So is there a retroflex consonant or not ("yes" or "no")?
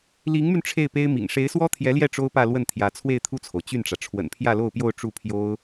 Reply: yes